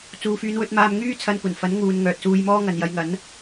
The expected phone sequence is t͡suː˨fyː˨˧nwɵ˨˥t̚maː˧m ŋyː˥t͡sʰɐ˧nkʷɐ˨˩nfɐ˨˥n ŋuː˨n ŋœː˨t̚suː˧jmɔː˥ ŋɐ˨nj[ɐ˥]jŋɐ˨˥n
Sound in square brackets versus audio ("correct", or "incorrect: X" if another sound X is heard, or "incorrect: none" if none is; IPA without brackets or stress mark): incorrect: ɐ˨˧